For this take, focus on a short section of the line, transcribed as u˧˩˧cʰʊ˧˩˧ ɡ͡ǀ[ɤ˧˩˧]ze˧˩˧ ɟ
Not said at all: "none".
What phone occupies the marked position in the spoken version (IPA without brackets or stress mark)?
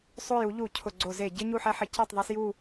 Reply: o˧˩˧